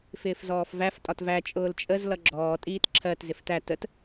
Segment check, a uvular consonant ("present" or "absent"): absent